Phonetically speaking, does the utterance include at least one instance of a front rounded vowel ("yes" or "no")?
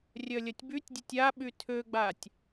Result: yes